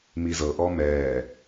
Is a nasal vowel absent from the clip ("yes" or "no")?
yes